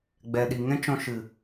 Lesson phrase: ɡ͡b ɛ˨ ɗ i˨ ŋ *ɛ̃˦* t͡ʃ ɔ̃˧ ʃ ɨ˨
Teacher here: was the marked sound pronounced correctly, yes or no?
yes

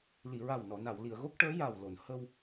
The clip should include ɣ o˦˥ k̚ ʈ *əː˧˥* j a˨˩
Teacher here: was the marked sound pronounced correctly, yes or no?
yes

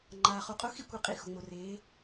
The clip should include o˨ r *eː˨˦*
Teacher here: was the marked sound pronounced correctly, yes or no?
yes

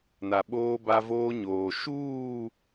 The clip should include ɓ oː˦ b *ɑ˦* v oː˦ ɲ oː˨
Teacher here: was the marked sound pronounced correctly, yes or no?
no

